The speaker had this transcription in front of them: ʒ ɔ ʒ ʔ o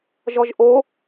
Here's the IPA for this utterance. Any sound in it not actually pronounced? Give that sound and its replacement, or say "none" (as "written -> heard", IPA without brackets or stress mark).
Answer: none